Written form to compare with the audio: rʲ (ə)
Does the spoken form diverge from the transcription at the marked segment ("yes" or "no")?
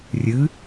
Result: yes